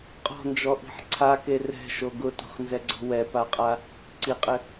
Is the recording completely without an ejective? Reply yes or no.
no